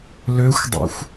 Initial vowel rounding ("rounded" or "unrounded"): rounded